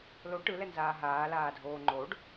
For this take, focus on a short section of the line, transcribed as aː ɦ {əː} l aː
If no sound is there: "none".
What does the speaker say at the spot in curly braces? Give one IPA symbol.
aː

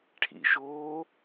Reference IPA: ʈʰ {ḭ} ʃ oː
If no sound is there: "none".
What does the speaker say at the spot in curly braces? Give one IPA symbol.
ḭ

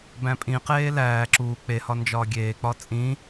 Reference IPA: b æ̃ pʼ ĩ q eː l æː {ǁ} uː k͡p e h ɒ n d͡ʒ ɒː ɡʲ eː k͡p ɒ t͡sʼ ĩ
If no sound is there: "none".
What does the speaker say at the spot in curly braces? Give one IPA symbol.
ǁ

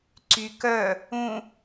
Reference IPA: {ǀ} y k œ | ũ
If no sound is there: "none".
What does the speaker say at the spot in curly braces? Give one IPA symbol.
ǀ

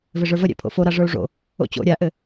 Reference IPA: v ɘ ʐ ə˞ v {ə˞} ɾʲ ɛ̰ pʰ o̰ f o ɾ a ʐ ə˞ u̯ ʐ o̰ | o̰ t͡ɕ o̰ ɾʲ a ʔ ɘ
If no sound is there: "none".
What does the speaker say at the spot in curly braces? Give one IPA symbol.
ə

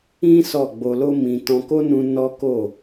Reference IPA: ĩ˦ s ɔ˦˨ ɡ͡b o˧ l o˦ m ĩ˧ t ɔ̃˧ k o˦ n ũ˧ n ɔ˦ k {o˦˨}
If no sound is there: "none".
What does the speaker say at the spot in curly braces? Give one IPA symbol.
o˦˨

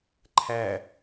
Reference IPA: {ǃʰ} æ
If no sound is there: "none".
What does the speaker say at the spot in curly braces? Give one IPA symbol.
ǃʰ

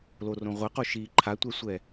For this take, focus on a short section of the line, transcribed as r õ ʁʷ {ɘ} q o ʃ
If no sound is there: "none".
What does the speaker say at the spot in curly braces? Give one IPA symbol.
ɘ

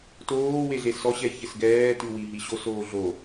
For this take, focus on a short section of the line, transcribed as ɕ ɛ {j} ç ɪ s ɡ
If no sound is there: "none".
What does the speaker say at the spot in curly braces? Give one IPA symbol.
j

